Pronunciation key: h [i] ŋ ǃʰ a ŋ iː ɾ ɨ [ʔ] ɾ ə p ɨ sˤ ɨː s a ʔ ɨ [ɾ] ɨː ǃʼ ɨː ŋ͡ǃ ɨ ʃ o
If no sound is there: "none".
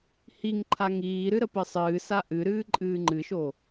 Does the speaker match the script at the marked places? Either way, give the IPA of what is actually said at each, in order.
i, none, ɾ

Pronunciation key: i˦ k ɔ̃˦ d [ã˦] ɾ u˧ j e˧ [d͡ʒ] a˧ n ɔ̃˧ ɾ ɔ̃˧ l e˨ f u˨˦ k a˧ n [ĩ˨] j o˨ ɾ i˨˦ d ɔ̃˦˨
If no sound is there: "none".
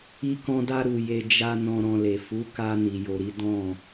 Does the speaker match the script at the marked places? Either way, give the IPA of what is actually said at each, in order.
a˦, d͡ʒ, i˨

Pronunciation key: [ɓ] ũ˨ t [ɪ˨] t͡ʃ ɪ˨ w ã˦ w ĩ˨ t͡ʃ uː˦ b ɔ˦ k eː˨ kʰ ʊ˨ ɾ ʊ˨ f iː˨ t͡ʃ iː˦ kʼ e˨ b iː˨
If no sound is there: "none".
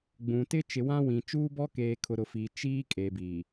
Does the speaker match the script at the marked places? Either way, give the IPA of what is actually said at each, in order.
ɡ͡b, ɪ˦

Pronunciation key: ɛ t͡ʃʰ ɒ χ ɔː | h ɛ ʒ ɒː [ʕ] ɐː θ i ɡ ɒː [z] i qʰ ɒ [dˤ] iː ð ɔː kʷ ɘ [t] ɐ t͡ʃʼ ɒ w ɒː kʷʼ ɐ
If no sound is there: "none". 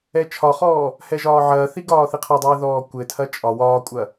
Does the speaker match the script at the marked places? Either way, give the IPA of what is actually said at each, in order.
ʕ, θ, dˤ, tʰ

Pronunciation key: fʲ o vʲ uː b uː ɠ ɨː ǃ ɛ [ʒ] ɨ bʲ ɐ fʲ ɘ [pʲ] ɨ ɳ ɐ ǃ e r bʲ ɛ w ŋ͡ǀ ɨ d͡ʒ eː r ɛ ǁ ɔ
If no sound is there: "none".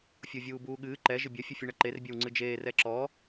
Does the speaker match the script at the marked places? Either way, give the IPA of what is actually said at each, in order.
ʒ, fʲ

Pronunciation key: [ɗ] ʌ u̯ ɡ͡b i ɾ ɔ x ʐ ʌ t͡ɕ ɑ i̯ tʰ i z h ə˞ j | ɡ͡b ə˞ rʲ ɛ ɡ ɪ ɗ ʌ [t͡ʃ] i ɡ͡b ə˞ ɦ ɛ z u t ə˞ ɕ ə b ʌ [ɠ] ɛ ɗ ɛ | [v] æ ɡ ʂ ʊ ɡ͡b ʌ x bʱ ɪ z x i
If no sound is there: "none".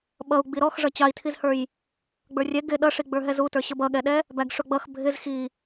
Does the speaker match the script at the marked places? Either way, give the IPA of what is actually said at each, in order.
ɓ, ʂ, ɠ, b

